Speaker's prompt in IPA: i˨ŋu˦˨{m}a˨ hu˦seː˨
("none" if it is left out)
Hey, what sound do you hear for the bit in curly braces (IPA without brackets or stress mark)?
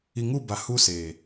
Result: b